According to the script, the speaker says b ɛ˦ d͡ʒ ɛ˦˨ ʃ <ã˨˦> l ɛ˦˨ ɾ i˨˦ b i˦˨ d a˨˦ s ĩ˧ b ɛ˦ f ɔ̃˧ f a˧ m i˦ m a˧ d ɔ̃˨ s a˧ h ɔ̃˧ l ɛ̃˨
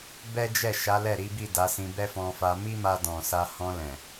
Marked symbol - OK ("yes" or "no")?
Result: no